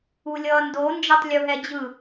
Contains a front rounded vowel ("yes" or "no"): no